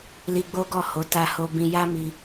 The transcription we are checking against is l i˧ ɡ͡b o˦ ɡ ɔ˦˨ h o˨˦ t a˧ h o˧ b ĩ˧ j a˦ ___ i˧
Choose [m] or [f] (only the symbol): m